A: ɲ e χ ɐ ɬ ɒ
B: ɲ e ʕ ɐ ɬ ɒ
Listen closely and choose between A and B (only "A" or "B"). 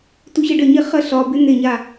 A